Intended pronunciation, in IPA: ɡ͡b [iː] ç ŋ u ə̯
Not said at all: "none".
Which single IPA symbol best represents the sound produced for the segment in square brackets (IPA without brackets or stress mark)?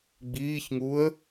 iː